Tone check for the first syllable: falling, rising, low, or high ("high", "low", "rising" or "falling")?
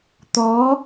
rising